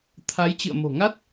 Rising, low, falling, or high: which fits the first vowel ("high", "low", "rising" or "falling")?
rising